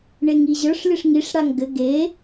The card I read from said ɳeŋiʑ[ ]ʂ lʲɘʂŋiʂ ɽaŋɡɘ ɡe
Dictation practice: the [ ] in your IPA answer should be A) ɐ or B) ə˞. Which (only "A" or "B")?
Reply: B